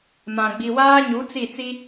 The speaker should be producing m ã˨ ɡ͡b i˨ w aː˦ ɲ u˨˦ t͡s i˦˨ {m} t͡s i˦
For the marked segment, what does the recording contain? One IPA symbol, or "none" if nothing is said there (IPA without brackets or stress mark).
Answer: none